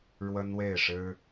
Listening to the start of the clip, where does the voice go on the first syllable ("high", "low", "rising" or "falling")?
high